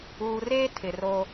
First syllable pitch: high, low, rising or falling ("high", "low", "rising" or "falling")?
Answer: low